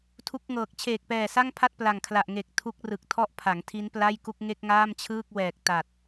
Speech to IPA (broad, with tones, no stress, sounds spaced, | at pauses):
tʰ u˦˥ k̚ ŋ ɤː˨˩ k̚ t͡ɕʰ eː˨˩ k̚ p ɛː˨˩ s a˥˩ ŋ pʰ a˥˩ t̚ p l a˨˩ ŋ kʰ l a˨˩ ʔ ŋ e˨˩ k̚ tʰ u˦˥ k̚ r ɯ˨˩ k̚ tʰ ɔ˥˩ ʔ pʰ a˩˦ ŋ tʰ i˦˥ n p l a˥˩ j k u˥˩ k̚ ŋ e˥˩ k̚ ŋ aː˥˩ m t͡ɕʰ ɯː˥˩ k̚ w ɛː˨˩ k̚ t a˨˩ t̚